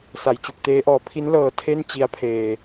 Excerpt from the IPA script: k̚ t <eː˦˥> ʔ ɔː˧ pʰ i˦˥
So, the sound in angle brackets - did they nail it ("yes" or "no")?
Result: yes